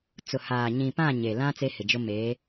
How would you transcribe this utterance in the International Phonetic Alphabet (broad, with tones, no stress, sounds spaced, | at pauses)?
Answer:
t͡s ʊ˨ h aː˨ ɲ ĩ˨ p ã˦˨ ɲ e˨ l ã˦ t͡s e˦ h ɪ˨ d͡ʒ ʊ˦ m eː˨˦